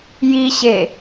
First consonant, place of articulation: palatal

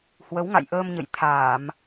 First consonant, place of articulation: glottal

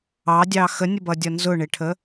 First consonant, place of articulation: alveolar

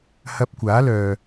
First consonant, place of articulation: glottal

